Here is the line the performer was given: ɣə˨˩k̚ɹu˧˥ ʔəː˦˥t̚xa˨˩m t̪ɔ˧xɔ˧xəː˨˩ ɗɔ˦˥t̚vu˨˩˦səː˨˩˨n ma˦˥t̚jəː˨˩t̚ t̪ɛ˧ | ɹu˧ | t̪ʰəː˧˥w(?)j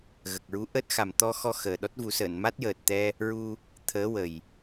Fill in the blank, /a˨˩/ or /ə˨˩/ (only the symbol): ə˨˩